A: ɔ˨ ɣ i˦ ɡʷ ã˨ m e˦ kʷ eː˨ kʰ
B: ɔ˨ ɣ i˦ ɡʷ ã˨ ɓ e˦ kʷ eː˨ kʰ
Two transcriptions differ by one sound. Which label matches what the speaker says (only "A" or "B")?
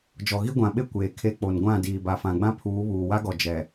B